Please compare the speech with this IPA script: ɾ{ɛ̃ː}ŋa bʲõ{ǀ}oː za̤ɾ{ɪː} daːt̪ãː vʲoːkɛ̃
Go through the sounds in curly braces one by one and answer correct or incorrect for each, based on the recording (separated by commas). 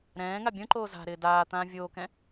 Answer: correct, incorrect, correct